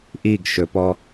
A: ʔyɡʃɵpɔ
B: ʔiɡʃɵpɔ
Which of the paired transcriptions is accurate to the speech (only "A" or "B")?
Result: B